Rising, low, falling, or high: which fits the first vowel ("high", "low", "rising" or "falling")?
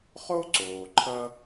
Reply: high